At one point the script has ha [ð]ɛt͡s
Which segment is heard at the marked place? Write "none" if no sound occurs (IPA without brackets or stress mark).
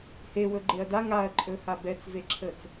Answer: b